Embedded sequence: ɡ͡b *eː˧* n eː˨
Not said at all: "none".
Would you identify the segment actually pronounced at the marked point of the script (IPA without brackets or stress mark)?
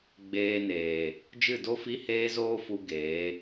eː˧